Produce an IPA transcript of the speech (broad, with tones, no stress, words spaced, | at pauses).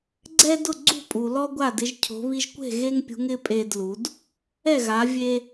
ɡ͡ǀɛ˦ dʊ˥˨ɡ͡ǀṳ˥˨pʼu˨lɔ˦ ɡʷa˥˨dɪ˨˦ʒcʰo̤˨˦βi˦ʒ kʷe̤˥˨ɣe˦ŋpʲṳ˨˦ŋ ɪ˨˦ pʼe˦dlu˨˦d | ɛ˥˨ɣa˨˦ vʲe˦